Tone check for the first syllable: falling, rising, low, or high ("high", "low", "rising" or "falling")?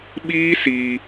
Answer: high